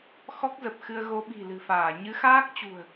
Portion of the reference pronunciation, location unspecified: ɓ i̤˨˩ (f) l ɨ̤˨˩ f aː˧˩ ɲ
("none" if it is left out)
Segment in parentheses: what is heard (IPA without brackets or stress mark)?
none